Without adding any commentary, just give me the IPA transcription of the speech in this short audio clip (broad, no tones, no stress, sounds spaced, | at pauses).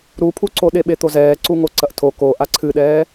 ɾ u pʰ u ǀ o ɗ e ɓ e t̪ o z ɛː ǀ u ŋ o ǀ ɐ ʔ tʰ o k o ʔ a ǀʰ ɨ ɗ ɛː